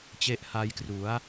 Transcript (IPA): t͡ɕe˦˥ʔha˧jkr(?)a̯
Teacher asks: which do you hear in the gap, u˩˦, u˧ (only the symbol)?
u˩˦